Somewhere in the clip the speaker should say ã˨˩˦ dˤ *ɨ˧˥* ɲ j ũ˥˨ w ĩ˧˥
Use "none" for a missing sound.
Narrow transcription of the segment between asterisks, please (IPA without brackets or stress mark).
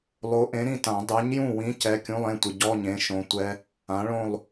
ɛ˧˥